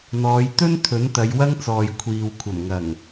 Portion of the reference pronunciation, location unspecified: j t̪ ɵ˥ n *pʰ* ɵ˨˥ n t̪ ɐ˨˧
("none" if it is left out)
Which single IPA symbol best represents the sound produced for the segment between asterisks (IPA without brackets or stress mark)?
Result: t̪ʰ